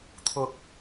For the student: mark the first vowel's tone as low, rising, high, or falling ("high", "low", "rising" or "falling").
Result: low